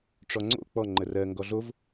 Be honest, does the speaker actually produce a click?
yes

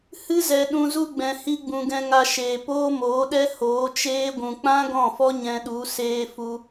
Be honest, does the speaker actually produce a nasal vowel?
yes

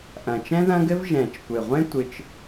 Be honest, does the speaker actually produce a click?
no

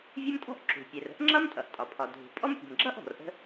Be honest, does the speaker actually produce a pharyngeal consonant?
no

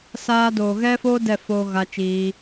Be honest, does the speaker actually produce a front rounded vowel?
no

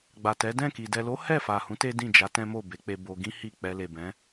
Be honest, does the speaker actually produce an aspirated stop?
no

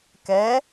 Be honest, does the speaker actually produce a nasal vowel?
no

